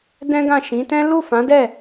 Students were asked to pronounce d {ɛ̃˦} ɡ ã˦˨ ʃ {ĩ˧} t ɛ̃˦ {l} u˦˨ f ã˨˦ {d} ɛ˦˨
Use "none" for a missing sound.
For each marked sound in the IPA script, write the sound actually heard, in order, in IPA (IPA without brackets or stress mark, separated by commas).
ɛ̃˦, ĩ˨˦, l, d